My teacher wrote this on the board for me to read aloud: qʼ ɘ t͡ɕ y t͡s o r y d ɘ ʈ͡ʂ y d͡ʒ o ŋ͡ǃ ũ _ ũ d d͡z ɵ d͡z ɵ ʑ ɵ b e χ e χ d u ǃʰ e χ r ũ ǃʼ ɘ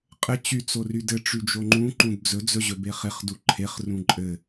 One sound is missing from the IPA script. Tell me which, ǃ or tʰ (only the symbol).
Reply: ǃ